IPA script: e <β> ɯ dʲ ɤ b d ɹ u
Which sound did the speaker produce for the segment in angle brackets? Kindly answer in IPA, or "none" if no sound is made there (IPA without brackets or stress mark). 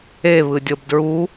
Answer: β